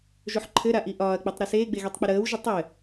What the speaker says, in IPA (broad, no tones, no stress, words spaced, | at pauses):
ʒoħǃʰɘɾa ʔiʔɒːɐ̯k͡pitˤ ɾɘseːɡ͡beɣetˤ k͡piɾəːwʒə tˤɘ